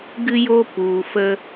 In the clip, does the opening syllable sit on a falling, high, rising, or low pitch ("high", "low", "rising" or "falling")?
high